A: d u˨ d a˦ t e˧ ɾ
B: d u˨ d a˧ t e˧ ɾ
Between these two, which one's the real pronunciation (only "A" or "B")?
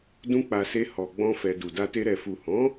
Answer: B